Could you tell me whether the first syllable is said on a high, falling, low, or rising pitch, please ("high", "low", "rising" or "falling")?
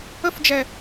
high